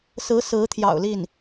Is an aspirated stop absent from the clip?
no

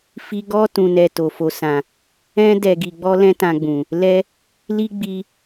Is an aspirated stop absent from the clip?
yes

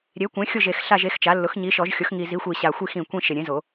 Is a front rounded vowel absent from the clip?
yes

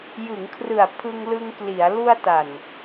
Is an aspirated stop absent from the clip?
no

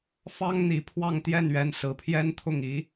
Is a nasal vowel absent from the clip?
yes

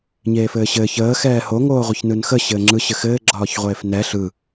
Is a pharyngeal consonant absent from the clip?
yes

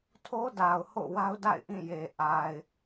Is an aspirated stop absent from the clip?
no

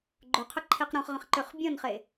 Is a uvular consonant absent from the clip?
no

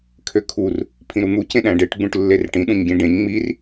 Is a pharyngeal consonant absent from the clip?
yes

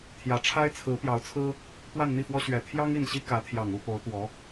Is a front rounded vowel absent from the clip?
yes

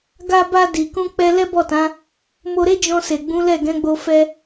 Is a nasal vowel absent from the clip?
no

